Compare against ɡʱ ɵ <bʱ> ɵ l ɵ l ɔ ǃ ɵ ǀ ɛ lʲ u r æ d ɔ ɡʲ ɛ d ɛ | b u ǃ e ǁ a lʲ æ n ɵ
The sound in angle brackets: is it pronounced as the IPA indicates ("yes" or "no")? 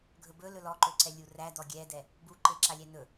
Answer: no